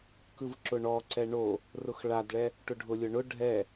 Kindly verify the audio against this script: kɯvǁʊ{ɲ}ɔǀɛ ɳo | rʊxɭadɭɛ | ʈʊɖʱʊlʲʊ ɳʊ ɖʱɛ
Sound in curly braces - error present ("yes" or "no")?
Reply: yes